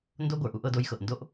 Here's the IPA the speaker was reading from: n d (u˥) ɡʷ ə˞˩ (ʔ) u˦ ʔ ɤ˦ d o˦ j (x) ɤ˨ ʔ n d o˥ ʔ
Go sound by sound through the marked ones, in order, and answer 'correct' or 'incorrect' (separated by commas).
incorrect, correct, correct